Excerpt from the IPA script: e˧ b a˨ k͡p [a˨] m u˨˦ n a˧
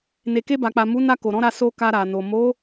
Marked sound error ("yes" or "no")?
no